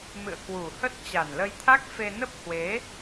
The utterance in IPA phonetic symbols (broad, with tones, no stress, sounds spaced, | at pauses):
m ɨ̰˧˨ ə̯ k w u˨˩ h ə˦˥ t̚ t͡ɕ a˨˩ n l ə˧ j t̪ʰ a˦˥ k̚ f e˧ n ə˦˥ p̚ h w e˨˦